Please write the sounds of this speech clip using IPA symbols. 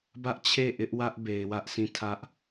b ä˦ ʔ t͡ɕʰ e˦˨ ʔ ɪ˦ ʔ w ä˦ ʔ b e˨ ɪ̯ w ä˦ ʔ sʰ ĩ˦˨ tʰ ä˦ ʔ

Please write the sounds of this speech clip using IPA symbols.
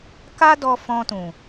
k a˦ d ɔ˧ f ɔ̃˧ t ũ˨

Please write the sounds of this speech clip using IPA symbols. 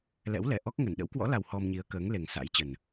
l ɛ̰˧˥ w l ɛ˧˩ ʔ ɔ˦˥ k̚ ŋ ə˧˩ n ɗ ə̰˧˥ w k w ɔ̰˧˥ l a˨˩ w h ɔ˧ m ɲ i˨˦ ə̯ k əː˨˦ ŋ l e˨˩ ŋ s a̰˧˥ j t͡ɕ ə˨˩ n

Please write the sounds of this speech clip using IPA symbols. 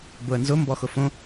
b ʊ ə̯ n z ʊ m b ɔ x ʊ f õ

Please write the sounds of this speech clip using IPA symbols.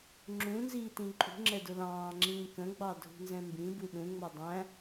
ŋ͡ǁ ũ n z iː t ĩ ǃʼ ṳ ŋ͡ǁ ɛ d ʊ l ɑ̃ː ŋ͡ǁ ĩː k ə̃ ɡ͡b ɑ dʱ ṳ n z ɛ̃ m b ĩ b u ɗ ũ ŋ͡m ʌ dˤ æ̃

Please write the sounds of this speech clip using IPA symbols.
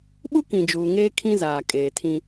ɓ u˦ k ĩ˨ d͡ʒ uː˨ ŋ eː˦ kʰ ĩ˦ z aː˨ kʼ eː˨ tʰ ĩ˦

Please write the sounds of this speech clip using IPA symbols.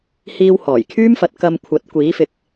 h iː˧ w h ɔː˨˩ j kʰ yː˥ m f ɐ˨˥ t̚ k ɐ˧ m kʷʰ ɐ˨˥ t̚ kʷ iː˨˥ f ɪ˨˥ k̚

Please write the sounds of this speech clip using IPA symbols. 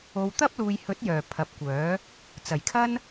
o˨ w t̪ ɐ˥ p̚ l uː˨ j h ɵ˨˥ t̚ j œː˨˩ pʰ ɐ˨˥ p̚ kʷ œː˨˥ | t͡s ɐ˨˩ j kʰ ɐ˥ n

